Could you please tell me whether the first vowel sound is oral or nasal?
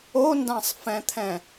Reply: oral